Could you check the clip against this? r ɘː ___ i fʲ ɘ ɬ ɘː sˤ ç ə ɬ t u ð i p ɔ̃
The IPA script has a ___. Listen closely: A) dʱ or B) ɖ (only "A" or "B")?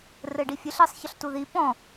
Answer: B